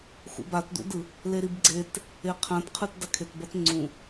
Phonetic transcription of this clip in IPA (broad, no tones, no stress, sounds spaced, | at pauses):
x ṵ b a t d ṵ d ɯ | l e ɾ i b ɡ͡ǀ e t | e qʰ ã t qʰ ɯ t d a kʰ e t b ʌ t ŋ͡ǀ ũ